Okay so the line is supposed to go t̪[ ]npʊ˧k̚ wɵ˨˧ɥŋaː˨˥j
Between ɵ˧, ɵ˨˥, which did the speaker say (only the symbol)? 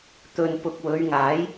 ɵ˧